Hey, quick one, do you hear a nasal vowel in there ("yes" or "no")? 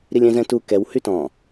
yes